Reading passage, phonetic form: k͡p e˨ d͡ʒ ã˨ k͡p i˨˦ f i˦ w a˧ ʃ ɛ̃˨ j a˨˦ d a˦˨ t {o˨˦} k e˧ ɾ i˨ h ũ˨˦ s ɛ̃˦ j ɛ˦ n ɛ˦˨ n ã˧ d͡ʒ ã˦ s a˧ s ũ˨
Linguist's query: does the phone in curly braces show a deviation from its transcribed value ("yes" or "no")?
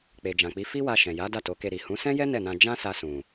no